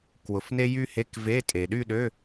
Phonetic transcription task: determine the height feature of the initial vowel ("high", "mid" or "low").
high